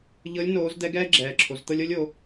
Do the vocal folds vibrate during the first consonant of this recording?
yes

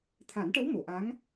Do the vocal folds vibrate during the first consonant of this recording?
no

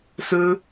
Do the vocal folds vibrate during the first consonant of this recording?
no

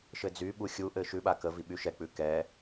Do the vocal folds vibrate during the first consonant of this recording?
no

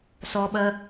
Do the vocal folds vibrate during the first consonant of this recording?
no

